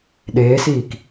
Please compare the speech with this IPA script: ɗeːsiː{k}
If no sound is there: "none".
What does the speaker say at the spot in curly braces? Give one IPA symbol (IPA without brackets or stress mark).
k